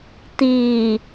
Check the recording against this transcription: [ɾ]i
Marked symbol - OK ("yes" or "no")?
no